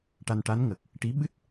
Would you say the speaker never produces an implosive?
no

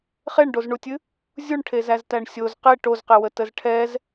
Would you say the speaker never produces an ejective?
yes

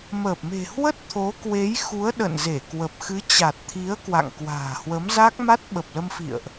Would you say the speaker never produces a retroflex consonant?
yes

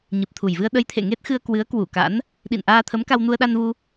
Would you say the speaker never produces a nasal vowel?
yes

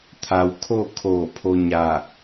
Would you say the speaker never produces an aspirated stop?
no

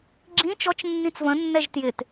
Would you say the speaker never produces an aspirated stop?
yes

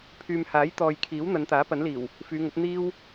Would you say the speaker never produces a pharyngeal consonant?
yes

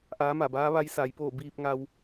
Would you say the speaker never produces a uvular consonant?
yes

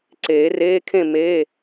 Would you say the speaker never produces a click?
no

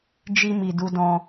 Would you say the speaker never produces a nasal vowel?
no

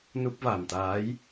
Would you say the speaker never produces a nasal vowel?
yes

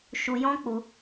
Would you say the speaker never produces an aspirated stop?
yes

